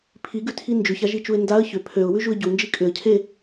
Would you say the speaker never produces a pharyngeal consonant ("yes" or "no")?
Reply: yes